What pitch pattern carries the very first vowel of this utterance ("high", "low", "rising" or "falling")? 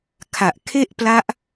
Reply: low